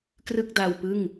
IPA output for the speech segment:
krɯ˥˩k̚da˧wpɯ˥˩ŋ

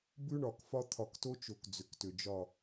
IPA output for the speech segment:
bʉ˦ɳɒ˨kfɒ˦ t̪ʰɒ˨kto˦t͡ʃo˨k d͡zʏ˨ktʏ˨d͡ʒɒ˦˨

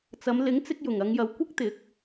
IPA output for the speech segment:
t͡sɐ˨˧m lɪ˨˥ŋt͡sɪ˧k̚ jʊ˨˩ŋɐ˨˧ŋjɐ˨w kʷɪ˥k̚ t̪ɪ˨˥k̚

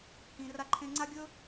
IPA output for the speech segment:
hĩ˨ra˦ǃʰẽ˦ ŋ͡ǀa˦ɡʲɵ˦

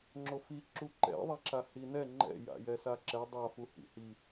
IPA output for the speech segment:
ŋ͡ǁofi ǁuǃɛ̰ðˤaǁa hinɛ ŋ͡ǃɛ̰ja̰jɛsa ǁɛ dˤafu hḭhi

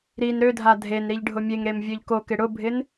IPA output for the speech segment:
ɾin ɾødʱa dʱen ɾiʎɖʱʊmʲeŋɾem vʲøʎkokɪ ɽʊbʱɪn

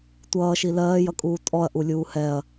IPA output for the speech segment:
tʷʌːʃi lɜːjʌkʼuː tʼɔɐ̯ʔulʲuː hɛɐ̯

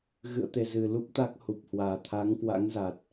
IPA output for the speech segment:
ɣɨ̰˧˨ə̯ t̪e˧ zɨ˨˩lu˦˥p̚ t̪a˦˥k̚hu˨˩p̚hwaː˨˩ t̪ʰa˨˦ŋkwa̰˧˥ŋza˨˩t̚

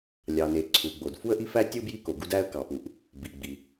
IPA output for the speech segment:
lʲɑ˩ne˩ ǀʰu˩ɡ͡bo˩d fu˥ə̯ʔi˥fæ˥tʲɯ˥ bji˥ko˩ɡu˥d æ˥ə̯kɑ˩pu˩ʔ | bi˩ɡ͡bi˩

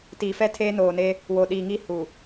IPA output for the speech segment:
tiː˨fɛ˦ tʰeː˦noː˨ne˦ | wo˨ ɗiː˨ŋi˦˨ hu˨

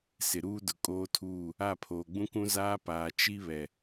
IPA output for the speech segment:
sɪ˨ɾuː˦dʊ˨ kʼoː˦tʰuː˦˨ | a˦˨pʰoː˨ɡ͡bũ˦kũ˦ zaː˦paː˨ t͡ʃi˦βɛ˨

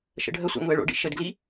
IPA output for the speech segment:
ʃə̰ɖʱəsʷa̰ ŋʊə̯ɭo̰ɖḭ ʃədɡli

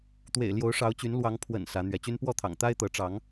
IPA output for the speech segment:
t̪wḛ˨˩ɪ̯ ljo˨˦ʊ̯ʂɑ˨˦ʊ̯t͡ɕy˨˦n lwɑ˨˦ŋ pʰwə̰˨˩n sä˨˦ n̪ɥɛ˨˦t͡ɕy˦n pwɔ˥˨t̪ʰɑ̰˨˩ŋ t̪a˦ɪ̯t̪ɤ˨˦ʈ͡ʂɑ˨˦ŋ

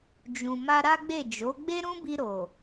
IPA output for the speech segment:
d͡ʒũ˨ ma˧ɾa˦ɡ͡be˦˨ d͡ʒo˨˦ ɡ͡be˦ɾũ˦bi˧ɾo˨

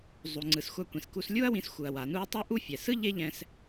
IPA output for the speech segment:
zˤu˩ ŋ͡ǀɯ˩sxʷa˧kʷĩ˩sku˧s lʲu˥ɐ̯wĩ˧s xʷɯ˩ɐ̯ wa˩nu˥ɐ̯ tˤu˥ ʔu˥fʲɛ˩ sɯ˥ ʎe˥ʎɛ̃˧s

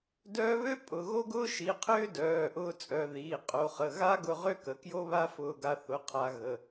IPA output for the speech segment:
dœː˧βø˥ pʼʊ˩˧˩ɣo˥ ɡʊː˥ʃi˩˧˩qʰʏː˥ dœː˩˧˩ʔʊː˧ t͡sʼœ˩˧˩ ðiː˩˧˩ qʼo˩˧χə˩˧˩ ɣa˥ɡʊ˧ ʁø˥kə˩˧˩ kjo˥βa˥fʊː˧ɡa˧ θʊ˩˧˩qʰa˩˧ ɣə˩˧˩

